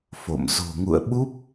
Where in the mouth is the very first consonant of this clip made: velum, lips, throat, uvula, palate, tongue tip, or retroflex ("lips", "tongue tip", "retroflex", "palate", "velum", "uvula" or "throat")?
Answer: lips